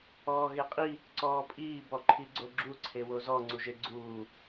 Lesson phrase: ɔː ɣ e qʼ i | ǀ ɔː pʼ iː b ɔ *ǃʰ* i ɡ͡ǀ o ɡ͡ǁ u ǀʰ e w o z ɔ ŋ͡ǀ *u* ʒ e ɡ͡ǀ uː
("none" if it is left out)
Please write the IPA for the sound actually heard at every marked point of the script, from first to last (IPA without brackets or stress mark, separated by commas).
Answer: ǃʰ, u